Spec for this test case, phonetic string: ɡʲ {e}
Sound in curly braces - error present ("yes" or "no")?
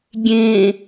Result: yes